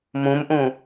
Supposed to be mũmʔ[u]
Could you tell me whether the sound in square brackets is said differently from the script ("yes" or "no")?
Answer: yes